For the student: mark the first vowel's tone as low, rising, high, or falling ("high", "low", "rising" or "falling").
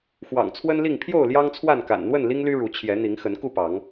low